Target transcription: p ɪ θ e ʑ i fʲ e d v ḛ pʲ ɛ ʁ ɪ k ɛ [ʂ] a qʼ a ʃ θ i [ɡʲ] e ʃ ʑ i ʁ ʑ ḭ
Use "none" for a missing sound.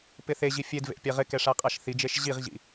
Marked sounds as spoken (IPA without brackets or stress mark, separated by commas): ʂ, d͡ʒ